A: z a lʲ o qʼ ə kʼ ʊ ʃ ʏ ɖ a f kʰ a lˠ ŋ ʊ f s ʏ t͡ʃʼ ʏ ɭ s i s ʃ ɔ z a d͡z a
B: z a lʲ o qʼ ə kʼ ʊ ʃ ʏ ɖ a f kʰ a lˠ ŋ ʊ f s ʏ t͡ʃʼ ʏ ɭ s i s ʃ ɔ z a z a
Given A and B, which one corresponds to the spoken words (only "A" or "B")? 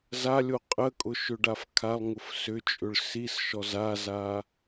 B